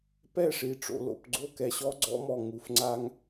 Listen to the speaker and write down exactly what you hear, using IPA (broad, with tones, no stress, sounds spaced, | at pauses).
p ɛ˦˨ ʂ i˨ ʈ͡ʂ o̰˨ l o̰˨ p ɡ͡ǀ o˦˨ k ɛ˨ ɕ ɔ˦ ɡ͡ǀ ɔ̰˦ m ɔ˨ ŋ u˨ f ŋ͡ǀ a˦ ŋ